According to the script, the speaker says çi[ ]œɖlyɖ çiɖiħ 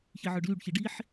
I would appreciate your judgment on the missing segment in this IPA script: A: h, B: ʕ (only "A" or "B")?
B